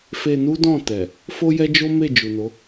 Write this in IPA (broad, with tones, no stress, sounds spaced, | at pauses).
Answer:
f e˧ n u˦ d ɔ̃˦˨ t ɛ˨ | f o˦ j ɛ˦ d͡ʒ o˦ m e˦˨ d͡ʒ u˨ n o˨˦